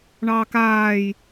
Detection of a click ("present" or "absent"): absent